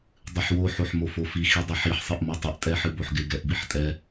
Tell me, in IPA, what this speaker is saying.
dˤɨħwo ħoħmofofi xidˤɪħiħ sˤɨʔmotˤɨʔ tʼɛħɨboħɡɪ ɡɛʔbiħtʼɛ

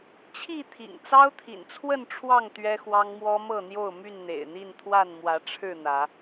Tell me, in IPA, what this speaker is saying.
t͡ɕʰi˥˨t̪ʰḭ˨˩ŋ t͡sɑ˦ʊ̯t̪ʰḭ˨˩nt͡sʰwə˥˨nʈ͡ʂʰwɑ˥˨ŋ t̪ɥɛ˦xwɑ˦ŋmwɔ˦ mɤ˥˨n̪jo˥˨ʊ̯my˥˨n n̪ḛ˨˩ɪ̯n̪i˥˨nt̪ʰwa˥˨n mwä˨˦ʈ͡ʂʰɻ̩˥˨n̪ä˨˦

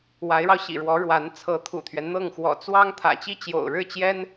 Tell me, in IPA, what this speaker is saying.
wa˧˥ɪ̯ɻɑ˧ʊ̯ɕḭ˨˩ɻwɔ˧˥ ɻwa˧˥n t͡sʰɤ˧˥t̪ʰṵ˨˩t̪ʰɥɛ˦nn̪ɤ˥˩ŋ xwɔ̰˨˩t͡swɑ˥ŋ t̪ʰä̰˨˩t͡ɕi˥t͡ɕjo̰˨˩ʊ̯ ɻɻ̩˥˩t͡ɕjɛ˥n

